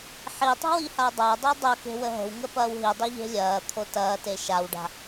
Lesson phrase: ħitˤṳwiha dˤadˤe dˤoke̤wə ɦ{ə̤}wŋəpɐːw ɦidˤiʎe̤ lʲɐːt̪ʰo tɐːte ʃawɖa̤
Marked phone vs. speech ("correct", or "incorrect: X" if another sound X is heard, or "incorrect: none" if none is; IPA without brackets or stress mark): correct